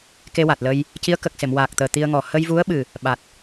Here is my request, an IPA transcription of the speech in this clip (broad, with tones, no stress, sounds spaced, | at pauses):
k e˧ w a˨˩ t̚ l ə˧ j | c i˧˥ ə̯ k ə˨˩ k̚ s e˨˩˨ m w aː˨˩ k̚ t̪ əː˨˩ t̪ i˧ ə̯ ŋ ɔ˨˩ h ə˧ j v u˧˥ ə̯ ɓ ɨ˨˩ | ɓ a˨˩ t̚